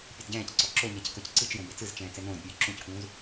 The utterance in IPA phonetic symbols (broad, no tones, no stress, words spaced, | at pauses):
pʲɯdɟɛ̃ːcǀɔ ǁoɲɛc kɤcǀɯt͡ʃjõ bet͡sɯzt͡ʃɛ̃ː t͡sɛnõːdpʲɯː ǁũckũːz